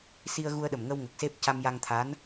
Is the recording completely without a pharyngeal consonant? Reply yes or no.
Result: yes